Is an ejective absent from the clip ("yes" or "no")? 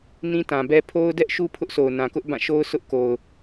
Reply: yes